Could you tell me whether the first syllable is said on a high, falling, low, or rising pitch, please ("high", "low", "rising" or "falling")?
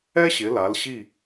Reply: high